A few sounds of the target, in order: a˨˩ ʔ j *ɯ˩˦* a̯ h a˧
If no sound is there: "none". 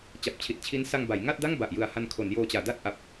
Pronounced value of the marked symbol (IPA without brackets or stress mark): ɯ˨˩